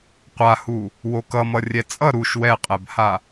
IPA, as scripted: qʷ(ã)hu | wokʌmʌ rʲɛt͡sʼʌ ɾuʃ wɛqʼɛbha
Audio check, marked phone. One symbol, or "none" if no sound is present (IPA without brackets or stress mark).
a